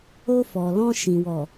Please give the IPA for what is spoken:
o˧ f ɔ˨ l ɔ̃˧ ʃ ĩ˨ w ɔ˨

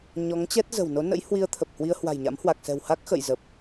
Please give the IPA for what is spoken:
ɲ ɔ˨˦ ŋ t͡ɕ ɛ˦˥ t̚ z ə̤˨˩ w n o˨˦ n ə̰˧˥ j h w i˧ ə̯ t̪ʰ ə˨˩ p̚ h w i˧ ə̯ h w a̤˨˩ j ɲ a̰˧˥ m h w a˨˩ k̚ s ɛ̤˨˩ w h a˦˥ k̚ x ə̰˧˨ j z ə˨˩ p̚

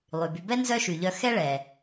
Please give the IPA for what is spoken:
lˠ y˩ b y˨ b ɛ˥ n z œ˦ ʃ y˩ ʎ œ˨ x ɛ˦ ɭ ɛ˩

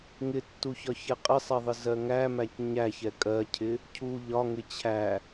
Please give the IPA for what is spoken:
ŋ ɪ tː u ç ɒ ç ɛ qʼ ɪ sˤ ɛ ðˤ ɪ z ɜ ŋ æ m æ c ɲ æ ç ɛ kʼ ɜ cʰ ɪ | cʰ u ʎ ɒ ŋ ɪ t͡ɕʰ æ

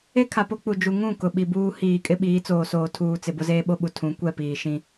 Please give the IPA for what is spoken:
e˦ kʰ a˨ p o˦ k͡p u˨ d͡ʒ u˨ ŋ ũ˦˨ k ʊ˨ ɓ i˨ b uː˦ h iː˨ kʼ ɪ˦ ɓ iː˨˦ t͡s oː˨ s oː˨ tʰ uː˨ t͡s ɪ˨ b ʊ˦ z eː˦ ɓ o˦ ɓ u˨ tʰ ũ˨˦ kʷ ɛ˦˨ p iː˨ ʃ ĩ˦

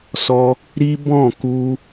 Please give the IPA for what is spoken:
s ɔ˧ | ɾ i˦ b ɔ̃˦˨ k u˧

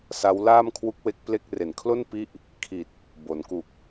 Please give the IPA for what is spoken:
s a˦˥ w l aː˥˩ m kʰ w u˦˥ k̚ w e˦˥ k̚ p l e˥˩ k̚ r e˨˩ n kʰ l o˥˩ n p i˦˥ ʔ | kʰ i˨˩ t̚ | b o˩˦ n k u˨˩ k̚

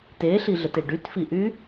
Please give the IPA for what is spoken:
t e ɬ i ɮ ə t e ɖ y t f i ʔ y

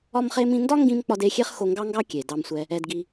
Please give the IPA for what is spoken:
ɒ˥ m χ e˥ m ĩ˥ n d ɒ˥ ŋ ɡ ĩ˧ m k͡p ɒ˥ d e˥ xʲ e˥ χ x o˧ ŋ ɡ ɑ˥ ŋ ɡ ɑ˥ kʲ e˩ d ɑ˧ m sʷ ɛ˧ | ɛ˧ d ɡ i˧

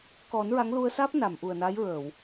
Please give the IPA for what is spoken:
k ɔ˨˩˦ n ɹ a˧˥ ŋ l u˧ ə̯ s aː˦˥ p̚ n a˨˩˨ m ʔ u˨˩ ə̯ n a˧˥ j ɹ əː˨˩˨ w

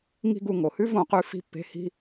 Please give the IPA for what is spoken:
ŋ i̤˦ ɡ u˧ ŋ o˨ h ʉ˦ v õ˧ q ʉ˧ f i̤˧ pː e̤˧ h i̤˦

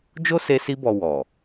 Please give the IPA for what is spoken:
d͡ʒ o˦ s e˧ s i˧ b ɔ˨ w ɔ˨

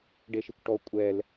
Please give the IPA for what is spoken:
ɖ e ʃ i kʷ ʈ ɔ kʷʼ ɛ l

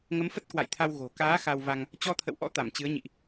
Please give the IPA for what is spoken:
ŋ ə˨˦ m f ə˦˥ t̚ k w a̰˧˨ j t̪ʰ a˧ w ɣ o̤˨˩ k aː˨˦ x a˧ w v a˧ ŋ | t͡ɕ ɔ˧ t̪ʰ ə̰˧˨ w ʔ ɔ̰˧˥ t̪ a˧˩ m t͡ɕ ɨ˨˦ ə̯ ɲ ḭ˧˨ ʔ

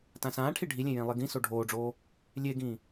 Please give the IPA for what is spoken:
t ã s ãː ʈʰ i ɖʱ i lʲ ẽ j ẽ lˠ i ɡ ĩ s o ɖʱ oː ɖ͡ʐ oː | lʲ e ɡ ĩː

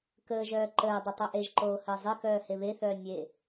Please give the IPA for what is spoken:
k əː ʒ œː ǃ əː dˤ ə tˤ o ʔ e ʒ ǃ oː h əː zˤ e k œː h e β e θ œː nʲ e

